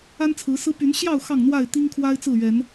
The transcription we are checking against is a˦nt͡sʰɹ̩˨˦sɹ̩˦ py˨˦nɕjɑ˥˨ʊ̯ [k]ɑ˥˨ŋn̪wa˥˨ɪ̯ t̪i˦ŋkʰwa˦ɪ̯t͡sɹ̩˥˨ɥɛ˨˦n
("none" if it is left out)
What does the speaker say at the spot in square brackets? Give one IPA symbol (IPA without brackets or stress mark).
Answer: x